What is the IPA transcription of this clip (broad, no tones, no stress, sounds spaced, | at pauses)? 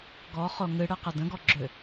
ɡ ɔ χ o ŋ ɨ ɽ ɨ q ə d ə̃ ɡ ɔ ɡ͡ǁ ʏ